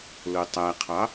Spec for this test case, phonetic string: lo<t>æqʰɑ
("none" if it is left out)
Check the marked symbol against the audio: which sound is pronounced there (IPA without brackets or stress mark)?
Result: tˤ